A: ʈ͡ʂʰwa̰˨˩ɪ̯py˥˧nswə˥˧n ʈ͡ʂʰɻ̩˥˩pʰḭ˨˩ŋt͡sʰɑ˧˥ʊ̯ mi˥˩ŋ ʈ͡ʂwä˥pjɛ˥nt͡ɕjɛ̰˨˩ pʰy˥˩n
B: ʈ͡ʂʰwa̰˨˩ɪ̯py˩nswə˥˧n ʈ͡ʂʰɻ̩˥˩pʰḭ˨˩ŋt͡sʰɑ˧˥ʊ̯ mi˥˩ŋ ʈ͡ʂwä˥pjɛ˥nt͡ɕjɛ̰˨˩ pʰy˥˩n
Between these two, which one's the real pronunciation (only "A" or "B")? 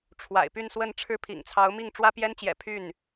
A